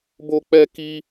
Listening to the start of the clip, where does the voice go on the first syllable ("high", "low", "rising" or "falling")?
high